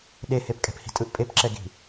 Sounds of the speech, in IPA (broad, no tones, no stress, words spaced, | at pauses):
ɗehepkʼɛ̤phi̤ tʼɯʔpʼepǁɛɡi̤